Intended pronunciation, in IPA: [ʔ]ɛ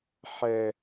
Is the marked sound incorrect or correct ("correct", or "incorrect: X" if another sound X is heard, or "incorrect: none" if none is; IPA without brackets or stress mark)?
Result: incorrect: ħ